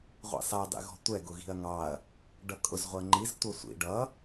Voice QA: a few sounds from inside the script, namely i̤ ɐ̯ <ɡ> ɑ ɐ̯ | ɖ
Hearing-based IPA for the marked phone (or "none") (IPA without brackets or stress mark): ŋ